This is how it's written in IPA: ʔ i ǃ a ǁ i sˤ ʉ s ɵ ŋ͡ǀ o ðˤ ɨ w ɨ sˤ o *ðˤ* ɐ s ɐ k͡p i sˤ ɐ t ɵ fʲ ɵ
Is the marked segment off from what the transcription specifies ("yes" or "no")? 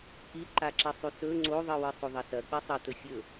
no